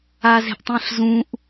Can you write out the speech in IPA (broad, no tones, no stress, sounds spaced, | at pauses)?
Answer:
a z e̤ ʔ tˤ ĩ ɬ z ũ ʔ